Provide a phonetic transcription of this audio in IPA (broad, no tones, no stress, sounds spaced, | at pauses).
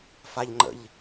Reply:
f a ʎ ŋ͡ǃ ə̰ ʎ